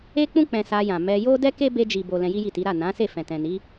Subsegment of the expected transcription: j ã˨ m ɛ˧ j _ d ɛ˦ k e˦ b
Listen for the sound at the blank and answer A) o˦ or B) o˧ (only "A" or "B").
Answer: A